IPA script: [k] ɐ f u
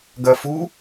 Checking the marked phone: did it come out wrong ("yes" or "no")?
yes